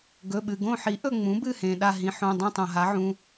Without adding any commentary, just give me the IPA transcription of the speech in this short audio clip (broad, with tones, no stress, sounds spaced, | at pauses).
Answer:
ɡ ɵ˩˧˩ ɓ ɨ˩ ɡ õ˦˨ ħ i˩˥ ʔ ɵ˦˨ ŋ͡m ũ˩˥ b ɨ˦˨ h ẽ˩ ɗ a˦˨ ɦ ĩ˩˥ ħ õ˩˧˩ dˤ ĩ˦˨ tˤ õ˩ ɦ a˩˥ ʕ ũ˩˧˩